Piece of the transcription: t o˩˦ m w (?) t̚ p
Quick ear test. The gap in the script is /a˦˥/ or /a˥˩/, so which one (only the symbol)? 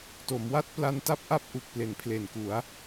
a˥˩